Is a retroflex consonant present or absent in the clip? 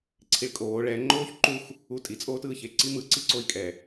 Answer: present